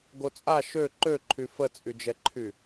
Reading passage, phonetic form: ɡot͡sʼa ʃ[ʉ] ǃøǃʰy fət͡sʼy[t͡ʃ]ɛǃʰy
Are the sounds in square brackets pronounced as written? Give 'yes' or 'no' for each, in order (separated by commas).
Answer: no, no